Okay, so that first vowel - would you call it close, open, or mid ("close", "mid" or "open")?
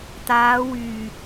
open